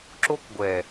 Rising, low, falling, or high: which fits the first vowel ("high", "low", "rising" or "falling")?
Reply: high